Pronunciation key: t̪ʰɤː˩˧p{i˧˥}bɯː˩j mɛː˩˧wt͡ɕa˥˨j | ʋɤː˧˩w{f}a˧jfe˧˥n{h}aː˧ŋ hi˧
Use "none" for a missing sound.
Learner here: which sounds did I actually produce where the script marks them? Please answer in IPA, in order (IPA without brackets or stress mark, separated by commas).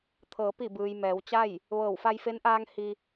i˧˩, f, ʔ